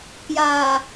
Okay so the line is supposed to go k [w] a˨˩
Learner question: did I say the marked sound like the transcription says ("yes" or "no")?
no